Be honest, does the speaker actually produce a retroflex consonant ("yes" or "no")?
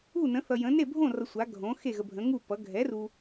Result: no